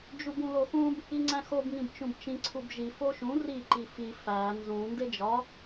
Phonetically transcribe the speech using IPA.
d͡ʒubũloxũb | iŋ͡ǀæ̃xob ŋĩbt͡ʃũbt͡ʃĩ ǀʰubʒi foʃũ ri ǃifi fæ nzũ nded͡ʒɒ

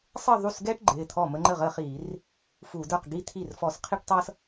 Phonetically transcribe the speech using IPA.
sˤə˥˧ðˤu˥˩sɡɛ˥ʈ ɡ͡ǃɪː˩˧˩t̪ʰɔ˥˩ mə˥ŋ͡ǃə˥˩ʁə˥˧χiː˧˩˧r | fu˧˩˧də˞˥˩qɡi˥t̪ʰi˥˩r fɔ˧˩˧sqʰi˥ʈtˤʌː˥s

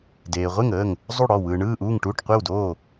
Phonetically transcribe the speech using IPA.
deː˨ ʁʷe˥˩ŋəː˥˩ŋ | zˤu˥˩ɽɔ˥˩ wɯː˨ɳɯː˥˩ʔuː˥˩ŋʈuː˥˩ʈ qʷe˥˩wdoː˥˩

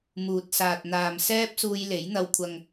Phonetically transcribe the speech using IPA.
muː˨t̚saː˨t̚ n̪aː˨msɛː˥p̚ suː˧jle˨˥jn̪ɐ˧w kʷʰɐ˨ŋ

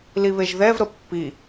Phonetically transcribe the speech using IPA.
liβeʒðɛvɾə pːi

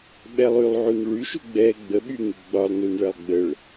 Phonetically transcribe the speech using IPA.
ɓɛlˠylˠʕun ɭyʃu ɡ͡bɛ ɡ͡bəɓyŋy ɡ͡bɒlˠ nunɭɛlˠɡ͡bəɭ

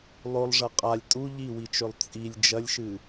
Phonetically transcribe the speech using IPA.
lˠolˠʐɐ qʼalʲ tʼu ʎiwit͡ʃɵlˠ t͡sʼilʲ d͡ʒɐlʲʃɨ

